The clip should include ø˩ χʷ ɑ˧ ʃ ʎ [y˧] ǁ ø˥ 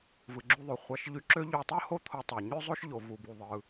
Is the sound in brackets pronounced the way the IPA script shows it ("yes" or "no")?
yes